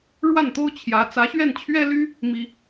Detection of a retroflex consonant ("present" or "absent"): present